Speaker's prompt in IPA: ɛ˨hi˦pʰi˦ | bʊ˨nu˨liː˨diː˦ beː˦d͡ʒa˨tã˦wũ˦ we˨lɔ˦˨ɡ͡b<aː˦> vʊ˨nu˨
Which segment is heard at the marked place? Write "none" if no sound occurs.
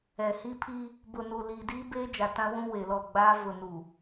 aː˦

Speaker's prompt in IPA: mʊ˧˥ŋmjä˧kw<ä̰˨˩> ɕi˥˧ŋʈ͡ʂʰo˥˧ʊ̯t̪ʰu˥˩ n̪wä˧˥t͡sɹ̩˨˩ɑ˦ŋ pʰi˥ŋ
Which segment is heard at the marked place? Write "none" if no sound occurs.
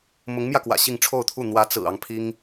ä̰˨˩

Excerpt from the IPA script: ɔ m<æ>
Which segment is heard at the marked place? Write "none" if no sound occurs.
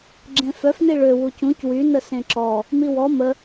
ə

